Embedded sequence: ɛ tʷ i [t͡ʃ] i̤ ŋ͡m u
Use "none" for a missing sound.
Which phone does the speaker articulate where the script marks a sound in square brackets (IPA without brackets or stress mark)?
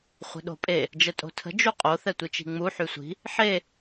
t͡ʃ